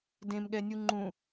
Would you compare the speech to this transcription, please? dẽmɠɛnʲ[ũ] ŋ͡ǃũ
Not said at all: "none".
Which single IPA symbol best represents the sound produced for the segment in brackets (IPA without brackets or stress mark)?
u